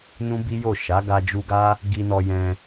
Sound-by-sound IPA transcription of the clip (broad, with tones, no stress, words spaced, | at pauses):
nũ˦bi˦jo˦˨ ʃa˨˦ɡa˧d͡ʒu˧ɡa˦ | ɡi˧nɔ˧jɛ̃˧